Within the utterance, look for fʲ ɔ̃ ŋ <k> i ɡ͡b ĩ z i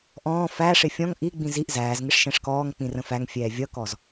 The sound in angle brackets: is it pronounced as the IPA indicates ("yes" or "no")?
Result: no